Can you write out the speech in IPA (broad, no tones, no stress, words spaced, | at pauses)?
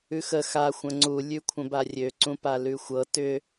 ʉxə xa xʷə̃ŋ͡ǀu lʲʉkʷʰə̃barʲø ǀũpalʉxʷɤ tʏ